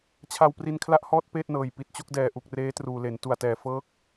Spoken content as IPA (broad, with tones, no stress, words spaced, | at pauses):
t͡ɕʰa˧wpri˧nkʰla˥˩ʔhɔː˥˩t̚ peː˥˩t̚nɤː˨˩jpi˨˩t̚t͡ɕo˥˩k̚ dɛː˨˩ʔu˨˩k̚ reː˦˥truː˨˩ le˩˦n tu˨˩a̯tɛː˨˩ fɤː˦˥k̚